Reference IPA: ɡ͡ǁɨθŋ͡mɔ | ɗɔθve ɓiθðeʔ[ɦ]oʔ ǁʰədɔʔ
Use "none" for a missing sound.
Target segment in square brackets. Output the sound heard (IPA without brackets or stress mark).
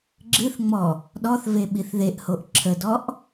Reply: h